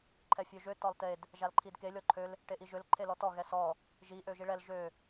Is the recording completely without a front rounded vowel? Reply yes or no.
no